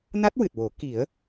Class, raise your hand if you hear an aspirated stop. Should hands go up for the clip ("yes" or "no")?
no